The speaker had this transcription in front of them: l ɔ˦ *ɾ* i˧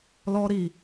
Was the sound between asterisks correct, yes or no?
yes